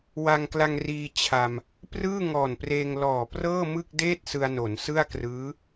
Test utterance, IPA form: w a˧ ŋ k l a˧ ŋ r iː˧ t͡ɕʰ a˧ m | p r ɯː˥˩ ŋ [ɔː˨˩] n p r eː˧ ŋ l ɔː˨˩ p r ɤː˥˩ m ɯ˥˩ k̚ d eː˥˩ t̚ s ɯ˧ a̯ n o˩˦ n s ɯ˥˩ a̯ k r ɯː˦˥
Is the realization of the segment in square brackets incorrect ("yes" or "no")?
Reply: no